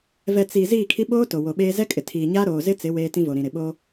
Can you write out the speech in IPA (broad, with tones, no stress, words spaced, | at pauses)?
vɛ˨ t͡si˨ ziː˦˨kʰi˦ ɓoː˦ to˨wo˨ɓeː˦ zɛ˦kʼɪ˨tʰiː˨ɲaː˦ ɾoː˨zɪ˦t͡sɪ˨˦ weː˦tĩ˦ vo˨ɾĩ˨ ɾɪ˨ɓo˦